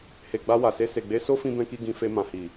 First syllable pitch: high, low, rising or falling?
low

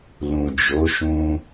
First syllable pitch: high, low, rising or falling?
low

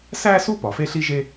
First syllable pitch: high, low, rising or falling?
high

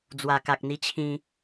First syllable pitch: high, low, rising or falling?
low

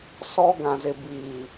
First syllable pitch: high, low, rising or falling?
high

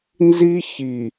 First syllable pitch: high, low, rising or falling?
high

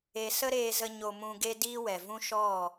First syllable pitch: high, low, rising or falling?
low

